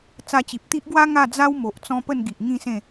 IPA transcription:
t͡s a˧ t͡ɕ i˨ p̚ t̪ i˦ ʔ ɡ w a˦ ŋ a˥˧ d͡z a˦ w m o˨ ʔ t͡s ɔ̃˦ p ə˥˧ n ɡ i˨ ʔ ŋ ĩ˥˧ s ẽ˥˧

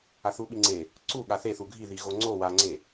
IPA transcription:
a θ u ɓ i ŋ͡ǀ e | ǀ u ɠ a θ e θ u ɡʱ i ð i ɣ o ŋ͡ǀ o w a ŋ͡ǀ e

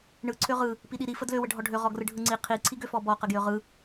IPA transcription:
ɳ ɯ ǀʰ ø ʁ ɯ | p i ɗ i ɾ i f ə d l ø w ə ɖʱ ɔ ɖʱ ø ʁ ɔ ɡ r ɯ ɖʱ ɯ ŋ͡ǀ i qʰ i ǀʰ i ɡ ø f ɔ b ɔ q ə ɡ j ø ʁ ɯ

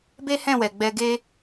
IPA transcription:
b e˦ h ɛ̃˦˨ w ɛ˨ ɡ͡b ɛ˧ ɡ e˦

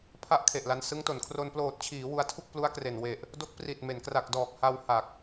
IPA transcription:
pʰ a˥˩ ʔ kʰ e˨˩ ʔ l a˧ n s ɯ˦˥ ŋ t o˩˦ n kʰ r o˧ n p l oː˨˩ t̚ t͡ɕʰ iː˩˦ w u˧ a̯ tʰ u˥˩ k̚ p l u˦˥ a̯ k r e˨˩ n w e˨˩ ʔ | d o˦˥ k̚ p r i˨˩ t̚ m e˩˦ n k r a˨˩ k̚ d ɔː˨˩ k̚ h a˧ w h a˨˩ k̚

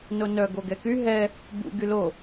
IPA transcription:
n o n œ ɡ o ɡ ɛ k y ɦ ɛ | b ṵ ɡ y l o

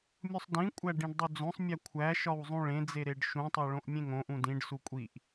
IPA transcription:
mʲ u sˤ d ĩ kʷʼ æ ɖ ĩ ɖ dˤ u d͡z õ sˤ mʲ æ kʷʰ æ ʃ ɒ w zˤ ũ ɭ ẽ d͡z e ɾ e ɖ ʃ ũ tˤ o ɭ õ ʔ mʲ ẽ ŋ õ ʔ ũ d ĩ ɖ s u kʷʼ i ʔ

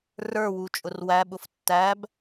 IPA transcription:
r ə˞ w u t͡ʃʼ ʊ r w æ ɓ ʊ f tː æ b

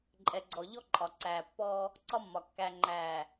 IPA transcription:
ǃʼ ɛ˨ ɡ͡ǀ ɔ˨ ʎ ɔ˦ ǃʼ ɒ˨ ǀ æː˨ pː ɔː˦ | ǀ ɒ˦ mː ɒ˨ kː æ˨ ŋ͡ǃ æː˨

